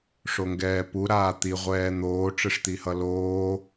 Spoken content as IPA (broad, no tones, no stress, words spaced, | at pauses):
ʂoŋɡɛːpu ɾaːt̪i ʁʷɛːn̪oː ʈ͡ʂɯʂt̪ihʌloː